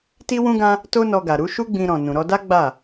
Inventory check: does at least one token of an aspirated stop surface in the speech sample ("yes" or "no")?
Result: no